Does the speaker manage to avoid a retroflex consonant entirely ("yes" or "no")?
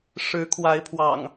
no